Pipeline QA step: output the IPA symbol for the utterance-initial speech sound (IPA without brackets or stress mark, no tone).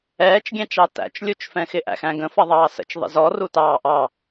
ɛː